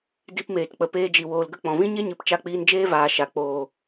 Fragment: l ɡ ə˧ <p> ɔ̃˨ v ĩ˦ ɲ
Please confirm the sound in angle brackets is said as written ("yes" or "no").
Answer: no